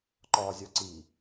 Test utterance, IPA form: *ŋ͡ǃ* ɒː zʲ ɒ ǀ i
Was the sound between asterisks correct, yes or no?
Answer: no